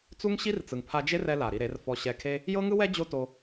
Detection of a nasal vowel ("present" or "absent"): absent